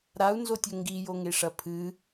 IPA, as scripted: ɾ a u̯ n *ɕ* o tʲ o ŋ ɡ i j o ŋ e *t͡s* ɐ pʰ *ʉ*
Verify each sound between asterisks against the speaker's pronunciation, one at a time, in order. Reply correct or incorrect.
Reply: incorrect: z, incorrect: ʂ, incorrect: ɨ

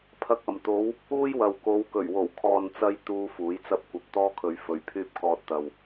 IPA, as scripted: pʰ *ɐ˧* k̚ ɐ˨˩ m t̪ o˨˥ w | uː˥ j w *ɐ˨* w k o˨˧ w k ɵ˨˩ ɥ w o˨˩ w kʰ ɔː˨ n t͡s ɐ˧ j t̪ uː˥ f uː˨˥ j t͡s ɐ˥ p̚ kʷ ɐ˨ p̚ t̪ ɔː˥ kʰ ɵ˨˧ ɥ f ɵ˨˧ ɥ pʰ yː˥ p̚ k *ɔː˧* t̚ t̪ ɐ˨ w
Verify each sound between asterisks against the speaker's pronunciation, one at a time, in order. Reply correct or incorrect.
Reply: correct, correct, correct

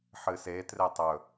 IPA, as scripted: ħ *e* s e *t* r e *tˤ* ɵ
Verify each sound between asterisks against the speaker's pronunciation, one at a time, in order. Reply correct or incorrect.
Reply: incorrect: ɨ, correct, correct

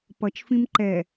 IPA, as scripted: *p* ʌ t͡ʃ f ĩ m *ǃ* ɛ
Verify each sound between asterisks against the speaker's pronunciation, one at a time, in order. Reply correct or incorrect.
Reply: correct, correct

